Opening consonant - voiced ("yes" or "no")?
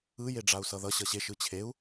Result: yes